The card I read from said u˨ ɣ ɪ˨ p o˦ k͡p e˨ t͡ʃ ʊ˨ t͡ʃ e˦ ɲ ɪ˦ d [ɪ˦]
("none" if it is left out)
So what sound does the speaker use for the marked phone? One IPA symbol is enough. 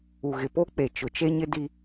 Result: i˦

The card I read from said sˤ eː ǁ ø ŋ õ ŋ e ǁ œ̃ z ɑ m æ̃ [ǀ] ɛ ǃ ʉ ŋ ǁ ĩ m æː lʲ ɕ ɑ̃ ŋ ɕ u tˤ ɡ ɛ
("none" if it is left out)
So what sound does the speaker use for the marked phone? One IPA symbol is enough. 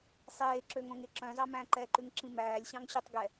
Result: ǃ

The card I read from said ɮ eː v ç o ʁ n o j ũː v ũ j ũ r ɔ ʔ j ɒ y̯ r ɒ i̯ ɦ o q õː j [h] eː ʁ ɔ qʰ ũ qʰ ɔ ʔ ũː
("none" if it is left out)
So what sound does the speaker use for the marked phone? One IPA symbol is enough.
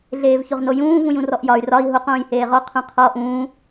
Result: h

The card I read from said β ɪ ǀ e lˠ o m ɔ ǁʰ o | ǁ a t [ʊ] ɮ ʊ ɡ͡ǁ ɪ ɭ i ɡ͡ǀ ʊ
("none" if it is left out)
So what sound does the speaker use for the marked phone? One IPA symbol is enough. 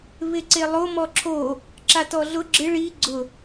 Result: ɔ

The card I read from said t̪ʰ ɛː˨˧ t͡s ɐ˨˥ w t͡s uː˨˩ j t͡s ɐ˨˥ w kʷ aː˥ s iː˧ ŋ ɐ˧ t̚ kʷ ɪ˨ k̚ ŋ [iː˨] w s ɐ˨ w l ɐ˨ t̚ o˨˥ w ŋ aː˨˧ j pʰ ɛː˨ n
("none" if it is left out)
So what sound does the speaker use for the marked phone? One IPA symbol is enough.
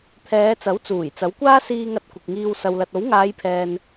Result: iː˧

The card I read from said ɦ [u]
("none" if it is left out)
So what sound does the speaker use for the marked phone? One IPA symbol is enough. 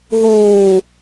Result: uː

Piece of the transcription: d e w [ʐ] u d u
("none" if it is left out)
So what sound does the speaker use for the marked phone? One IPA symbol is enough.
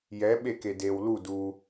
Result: l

